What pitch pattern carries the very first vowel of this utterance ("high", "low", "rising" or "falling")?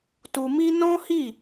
low